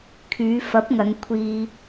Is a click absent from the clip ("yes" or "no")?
yes